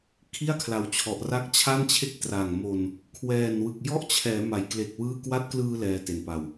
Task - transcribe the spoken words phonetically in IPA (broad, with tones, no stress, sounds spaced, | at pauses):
kʰ i˥˩ a̯ kʰ l a˨˩ w t͡ɕʰ ɔ˨˩ ʔ r a˦˥ k̚ t͡ɕʰ a˥˩ n t͡ɕʰ e˥˩ k̚ t r a˨˩ ŋ m o˧ n | kʰ w ɛː˨˩ n w ɯ˨˩ k̚ j ɔ˥˩ ʔ t͡ɕʰ ɛː˩˦ m a˩˦ j k l e˨˩ k̚ w ɯː˥˩ k w a˦˥ t̚ k l ɯː˧ l ɛː˧ t e˨˩ n p a˧ w